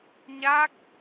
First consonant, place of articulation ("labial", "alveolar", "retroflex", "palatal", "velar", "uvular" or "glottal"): palatal